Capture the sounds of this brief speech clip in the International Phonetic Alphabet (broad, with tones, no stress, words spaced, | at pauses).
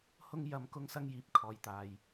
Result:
hʊ˥ŋ jɐ˥m kʊ˥ŋsɐ˥ŋjiː˨p̚ kʰɔː˨jt̪aː˨j